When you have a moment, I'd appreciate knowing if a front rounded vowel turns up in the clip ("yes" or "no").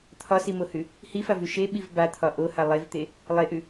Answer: no